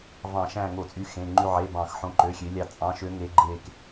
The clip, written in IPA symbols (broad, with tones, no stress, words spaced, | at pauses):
vɑ̃˧˩˧ʃæ̃˦˨ŋo˧˩˧t͡sʼy˨˦ xẽ˩˧˩ŋ͡ǃy˦˨ ʕe˩˧˩bɑ̃˧˩˧x ħõ˨˦ǃø˩˧˩xʲø˨˦lʲɑ˦˨ t͡sʼɑ̃˨˦ʃø˨˦ ŋe˨˦ɡ͡ǃe˦˨k